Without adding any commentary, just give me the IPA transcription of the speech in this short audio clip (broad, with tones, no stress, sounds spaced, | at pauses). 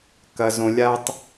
k ɐ˨ z õ˨ lʲ a˦ tˤ